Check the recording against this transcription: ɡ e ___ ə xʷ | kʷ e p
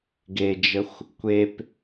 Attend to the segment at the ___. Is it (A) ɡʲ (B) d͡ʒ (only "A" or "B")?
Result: B